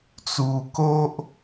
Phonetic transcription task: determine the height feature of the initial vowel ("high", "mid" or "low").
high